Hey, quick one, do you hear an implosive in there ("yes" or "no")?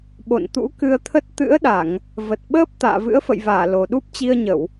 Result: yes